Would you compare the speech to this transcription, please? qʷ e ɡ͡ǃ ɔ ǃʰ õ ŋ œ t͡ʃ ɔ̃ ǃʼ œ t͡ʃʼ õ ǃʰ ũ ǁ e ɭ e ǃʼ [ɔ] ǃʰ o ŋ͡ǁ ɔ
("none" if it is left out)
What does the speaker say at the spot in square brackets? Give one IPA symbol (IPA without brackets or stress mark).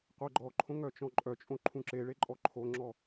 ɔ